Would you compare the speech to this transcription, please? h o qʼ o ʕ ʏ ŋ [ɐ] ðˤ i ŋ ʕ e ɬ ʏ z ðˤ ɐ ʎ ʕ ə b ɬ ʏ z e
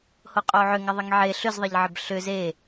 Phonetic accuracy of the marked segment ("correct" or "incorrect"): correct